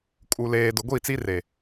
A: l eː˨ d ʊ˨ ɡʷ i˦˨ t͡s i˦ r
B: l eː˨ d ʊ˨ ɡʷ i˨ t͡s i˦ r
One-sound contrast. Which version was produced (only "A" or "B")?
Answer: A